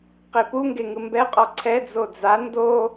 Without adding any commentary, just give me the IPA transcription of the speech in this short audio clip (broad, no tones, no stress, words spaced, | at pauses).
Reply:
qepuŋɡe ŋɯmbɛqʼɔ ǀʰɛ d͡zod͡za ndo